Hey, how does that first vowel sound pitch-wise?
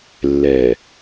low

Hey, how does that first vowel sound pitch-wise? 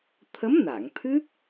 rising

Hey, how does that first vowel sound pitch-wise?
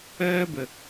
high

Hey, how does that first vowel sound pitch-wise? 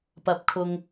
low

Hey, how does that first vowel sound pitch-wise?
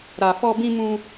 low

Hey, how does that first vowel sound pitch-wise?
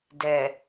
low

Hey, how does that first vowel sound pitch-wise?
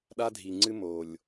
high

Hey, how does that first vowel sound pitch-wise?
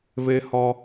high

